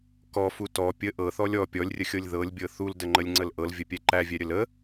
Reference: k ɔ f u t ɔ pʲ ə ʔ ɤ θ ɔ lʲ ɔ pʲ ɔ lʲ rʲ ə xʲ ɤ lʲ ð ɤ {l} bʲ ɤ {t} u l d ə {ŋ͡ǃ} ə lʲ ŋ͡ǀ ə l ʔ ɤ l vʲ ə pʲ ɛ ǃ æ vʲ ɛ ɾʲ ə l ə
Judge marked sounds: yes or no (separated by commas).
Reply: no, no, yes